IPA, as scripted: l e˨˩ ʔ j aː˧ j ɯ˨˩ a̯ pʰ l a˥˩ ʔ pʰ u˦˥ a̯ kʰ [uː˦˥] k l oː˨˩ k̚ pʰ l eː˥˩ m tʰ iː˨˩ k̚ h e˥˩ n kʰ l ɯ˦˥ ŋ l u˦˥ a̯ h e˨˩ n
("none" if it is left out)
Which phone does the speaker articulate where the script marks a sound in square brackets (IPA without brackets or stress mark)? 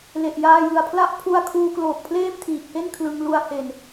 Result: uː˦˥